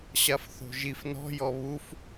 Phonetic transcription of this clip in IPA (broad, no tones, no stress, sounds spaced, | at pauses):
ɕ a f θ o̤ ʒ i f n ɔ̤ j ɔ β u f